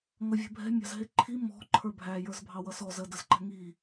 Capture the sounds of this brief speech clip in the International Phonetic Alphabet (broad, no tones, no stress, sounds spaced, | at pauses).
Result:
ŋ ʌ vʲ ɛ̤ bʱ ɛ̤ mʲ ɑ̤ z ɦ ɪ ǃʰ i m ɔ̤ ǃʰ ə˞ bʱ æ j ə˞ z bʱ ɑ w ʌ s ɔ z ə d ə z ǃ ɛ̤ ŋ i